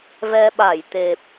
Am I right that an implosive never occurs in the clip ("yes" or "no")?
no